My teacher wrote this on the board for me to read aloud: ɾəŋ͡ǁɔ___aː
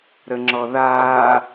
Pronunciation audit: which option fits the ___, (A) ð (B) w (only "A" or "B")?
A